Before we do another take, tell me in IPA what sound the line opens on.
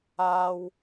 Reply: aː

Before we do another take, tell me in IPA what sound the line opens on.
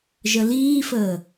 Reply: ʒ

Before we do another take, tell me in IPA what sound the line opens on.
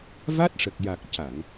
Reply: v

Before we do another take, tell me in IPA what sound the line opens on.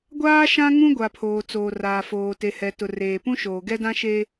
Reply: ɡʷ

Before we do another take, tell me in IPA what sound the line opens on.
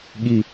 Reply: ɠ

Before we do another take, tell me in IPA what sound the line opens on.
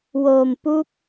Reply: w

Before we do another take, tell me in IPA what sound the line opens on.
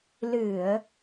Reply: l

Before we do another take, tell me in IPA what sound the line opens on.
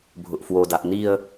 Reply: bʱ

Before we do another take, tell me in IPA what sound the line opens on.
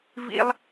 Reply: v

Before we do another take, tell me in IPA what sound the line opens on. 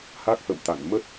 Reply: h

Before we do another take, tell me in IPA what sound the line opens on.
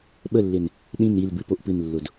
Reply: ɓ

